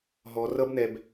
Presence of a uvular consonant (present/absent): absent